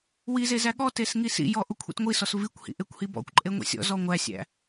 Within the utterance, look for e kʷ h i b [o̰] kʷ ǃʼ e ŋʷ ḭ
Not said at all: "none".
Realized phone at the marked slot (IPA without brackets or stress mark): ɔ̰